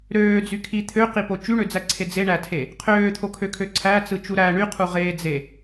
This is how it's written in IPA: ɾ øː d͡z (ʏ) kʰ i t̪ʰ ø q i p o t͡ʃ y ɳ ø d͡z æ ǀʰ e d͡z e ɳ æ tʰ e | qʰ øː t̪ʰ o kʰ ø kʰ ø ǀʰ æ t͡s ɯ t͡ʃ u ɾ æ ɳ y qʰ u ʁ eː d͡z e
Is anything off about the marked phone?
yes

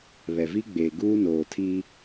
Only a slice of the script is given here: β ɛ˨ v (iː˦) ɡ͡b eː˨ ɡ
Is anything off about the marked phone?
yes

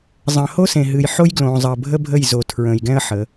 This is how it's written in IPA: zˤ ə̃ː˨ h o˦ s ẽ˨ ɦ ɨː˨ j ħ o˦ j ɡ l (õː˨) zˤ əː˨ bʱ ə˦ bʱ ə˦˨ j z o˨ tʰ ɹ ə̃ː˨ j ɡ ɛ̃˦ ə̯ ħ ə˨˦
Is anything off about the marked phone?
no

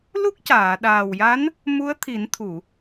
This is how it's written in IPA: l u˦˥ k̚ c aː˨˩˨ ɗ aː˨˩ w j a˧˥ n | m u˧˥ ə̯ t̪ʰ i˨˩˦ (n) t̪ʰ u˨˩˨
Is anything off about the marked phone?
no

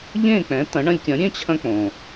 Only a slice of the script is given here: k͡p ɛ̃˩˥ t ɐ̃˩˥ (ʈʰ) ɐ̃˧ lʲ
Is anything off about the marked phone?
yes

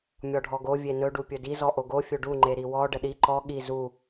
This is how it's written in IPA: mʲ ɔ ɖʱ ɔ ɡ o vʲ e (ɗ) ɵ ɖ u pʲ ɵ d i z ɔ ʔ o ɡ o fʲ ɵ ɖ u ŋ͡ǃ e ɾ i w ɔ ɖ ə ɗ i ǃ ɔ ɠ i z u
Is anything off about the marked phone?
yes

